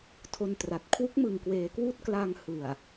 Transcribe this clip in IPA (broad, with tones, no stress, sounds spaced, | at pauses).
tʰ o˧ n t r a˨˩ t̚ kʰ w u˦˥ k̚ m ɯ˨˩ ŋ k w eː˩˦ k w uː˦˥ t̚ k l a˧ ŋ h ɯ˨˩ a̯